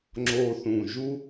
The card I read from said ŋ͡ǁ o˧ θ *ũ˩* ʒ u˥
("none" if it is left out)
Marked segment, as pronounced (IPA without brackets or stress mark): ũ˩